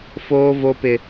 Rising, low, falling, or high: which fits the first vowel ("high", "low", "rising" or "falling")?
high